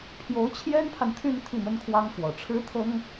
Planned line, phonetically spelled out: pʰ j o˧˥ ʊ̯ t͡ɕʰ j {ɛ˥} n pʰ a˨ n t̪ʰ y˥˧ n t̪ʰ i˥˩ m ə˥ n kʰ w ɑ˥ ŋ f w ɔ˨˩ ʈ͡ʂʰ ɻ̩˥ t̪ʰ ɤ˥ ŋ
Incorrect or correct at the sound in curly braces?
correct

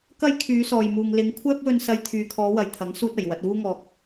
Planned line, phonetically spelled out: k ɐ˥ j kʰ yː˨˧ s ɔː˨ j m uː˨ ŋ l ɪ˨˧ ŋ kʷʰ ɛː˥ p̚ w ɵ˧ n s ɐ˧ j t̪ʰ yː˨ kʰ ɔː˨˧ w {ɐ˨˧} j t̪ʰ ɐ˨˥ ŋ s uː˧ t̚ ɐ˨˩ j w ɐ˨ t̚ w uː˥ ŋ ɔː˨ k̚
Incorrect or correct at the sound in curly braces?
incorrect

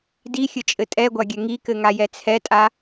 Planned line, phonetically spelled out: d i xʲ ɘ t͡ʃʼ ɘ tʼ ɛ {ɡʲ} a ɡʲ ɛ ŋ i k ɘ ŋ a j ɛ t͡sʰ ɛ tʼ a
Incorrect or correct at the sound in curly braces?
incorrect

